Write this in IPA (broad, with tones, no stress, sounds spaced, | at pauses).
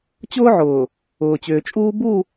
t͡ɕ ʊː˦ ʕ ʊː˨ | ʊː˨ t͡ɕ ʏː˨ t͡ʃʼ uː˦ b u˦˨